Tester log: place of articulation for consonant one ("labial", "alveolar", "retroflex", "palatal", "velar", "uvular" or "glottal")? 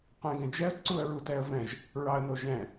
uvular